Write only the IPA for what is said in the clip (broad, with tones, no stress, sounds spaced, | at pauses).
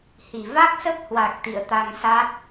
h i˧˩ v a˦˥ k̚ s ə˦˥ p̚ h w a˨˩ k̚ t̪ ḭ˧˨ ə̯ t̪ a˧ ŋ s a˦˥ t̚